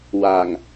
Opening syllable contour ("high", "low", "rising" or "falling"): low